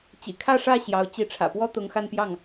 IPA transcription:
t͡ɕ ḭ˨˩ kʰ ä˥˧ ʂ ä˥˩ ɕ j ɑ˧˥ ʊ̯ t͡ɕ i˧˥ ʈ͡ʂʰ ä̰˨˩ p w ɔ˥ t̪ ʊ˧˥ ŋ x a˥˧ n p j ɑ˥˩ ŋ

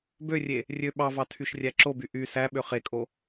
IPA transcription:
b ø rʲ e | rʲ ø ɓ ɑ v ɑ tʰ y ʃ rʲ æ ǁ o b y ʔ y s æ ɓ ø χ e kʼ o

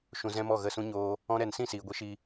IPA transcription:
ʃ ũ˧ z ɛ̃˦ m ɔ˦˨ ɣ ə˦˨ s ũ˦ ɲ oː˦ | ɔ̃˦ ɾ ɛ˧ n s ĩ˦˨ s iː˨ ɡʷ i˧ ʃ i˧

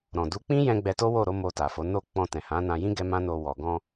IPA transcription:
ɾ ɔ̃˨ d u˨˦ k͡p ĩ˦ j ɛ̃˧ ɡ͡b ɛ˧ t o˦ w o˦˨ ɾ o˨˦ m o˧ t a˨ f o˨˦ n o˦˨ k͡p ɔ̃˧ t ɛ̃˨ h ã˨˦ n ã˧ j ĩ˦ ɡ ɛ˦ m ã˦ n o˧ w ɔ˨ ɡ ɔ̃˧

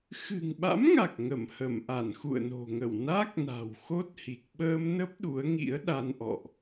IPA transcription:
x ɨ̤˨˩ ŋ ɓ a̰˧˥ m ŋ a˨˩ k̚ ŋ ə˧˩ m h ə˧˩ m ʔ a˧˩ n x ṵ˧˨ ə̯ n o̤˨˩ ŋ ə˧˩ w n a˦˥ k̚ n a̤˨˩ w x o˦˥ t̚ h i˨˩ k̚ ɓ əː˧ m n ə˦˥ p̚ ɗ u˨˦ ə̯ ŋ ḭ˧˥ ə̯ ɗ a˧ n ʔ ɔ̰˧˨ ʔ

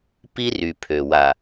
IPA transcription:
p i˦ r y˨ pʰ ø˨ w a˨

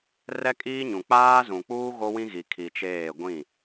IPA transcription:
r ɛ˦ kʼ iː˦ ɲ ũ˨ k͡p aː˦ z ũ˨ k͡p uː˦ ɣ o˦ w ĩ˦ ɣ i˨ kʰ i˨ t͡ʃ eː˦˨ ɡʷ ĩ˦˨

